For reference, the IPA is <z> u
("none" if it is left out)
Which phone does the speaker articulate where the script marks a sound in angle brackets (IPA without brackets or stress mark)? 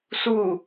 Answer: s